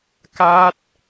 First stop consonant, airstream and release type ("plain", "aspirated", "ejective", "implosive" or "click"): plain